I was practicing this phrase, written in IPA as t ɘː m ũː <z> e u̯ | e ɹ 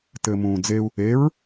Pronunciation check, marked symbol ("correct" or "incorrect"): incorrect